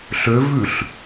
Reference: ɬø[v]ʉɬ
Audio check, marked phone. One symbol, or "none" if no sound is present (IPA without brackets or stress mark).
v